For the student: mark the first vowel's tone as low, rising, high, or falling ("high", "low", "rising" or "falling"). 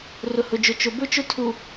low